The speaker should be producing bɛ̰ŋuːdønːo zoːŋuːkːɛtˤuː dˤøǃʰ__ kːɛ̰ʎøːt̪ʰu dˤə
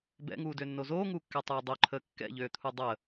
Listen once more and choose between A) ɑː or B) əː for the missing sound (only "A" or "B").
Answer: B